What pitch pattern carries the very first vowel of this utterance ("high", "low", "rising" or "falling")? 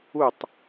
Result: falling